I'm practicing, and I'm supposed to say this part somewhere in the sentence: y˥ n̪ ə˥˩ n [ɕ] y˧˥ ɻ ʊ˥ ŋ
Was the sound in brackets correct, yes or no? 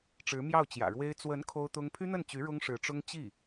no